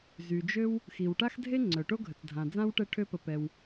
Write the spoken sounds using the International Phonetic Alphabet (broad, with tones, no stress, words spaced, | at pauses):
zy˩d͡ʒø˦w | xi˩wʈa˥xdʱe˥ ŋ͡ǀœ˩ʈo˥ɡʱə˩t͡sdʱã˩ d͡zã˥wʈɛ˦ʈʰø˦pə˨ pɛ˩w